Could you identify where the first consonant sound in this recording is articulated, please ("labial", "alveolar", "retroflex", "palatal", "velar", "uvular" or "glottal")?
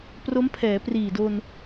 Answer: labial